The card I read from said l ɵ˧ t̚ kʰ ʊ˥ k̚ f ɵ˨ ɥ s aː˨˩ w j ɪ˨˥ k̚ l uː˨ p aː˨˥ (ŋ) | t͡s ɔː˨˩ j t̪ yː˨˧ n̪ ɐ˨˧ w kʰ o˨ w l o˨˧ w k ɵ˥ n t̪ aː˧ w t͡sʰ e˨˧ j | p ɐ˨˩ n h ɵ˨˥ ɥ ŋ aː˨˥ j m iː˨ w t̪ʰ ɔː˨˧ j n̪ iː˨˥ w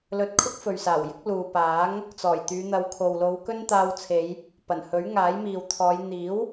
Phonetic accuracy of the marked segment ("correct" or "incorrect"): correct